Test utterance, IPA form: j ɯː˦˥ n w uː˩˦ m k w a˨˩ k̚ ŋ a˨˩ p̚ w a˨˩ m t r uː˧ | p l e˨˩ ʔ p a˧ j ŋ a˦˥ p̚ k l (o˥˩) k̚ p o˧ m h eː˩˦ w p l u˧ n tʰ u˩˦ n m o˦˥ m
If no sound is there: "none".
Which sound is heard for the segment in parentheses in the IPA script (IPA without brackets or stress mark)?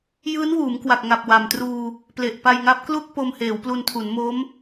u˥˩